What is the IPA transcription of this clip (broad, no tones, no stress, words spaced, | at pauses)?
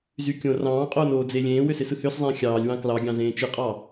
zykʲõ rɑ̃ːqʼoːn oːd͡ze lʲẽːwøsesɯ høszˤẽː xʲɑːlʲwɑ̃ klɑɡʲɑ̃zẽː t͡ʃɯqʼɑ